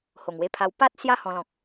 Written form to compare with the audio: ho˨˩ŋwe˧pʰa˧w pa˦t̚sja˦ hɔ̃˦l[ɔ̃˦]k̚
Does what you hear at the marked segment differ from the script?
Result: no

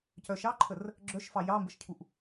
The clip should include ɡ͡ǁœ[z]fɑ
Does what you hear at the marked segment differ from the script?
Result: yes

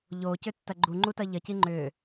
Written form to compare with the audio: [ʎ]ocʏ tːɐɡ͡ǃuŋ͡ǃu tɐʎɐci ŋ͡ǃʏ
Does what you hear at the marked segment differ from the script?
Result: no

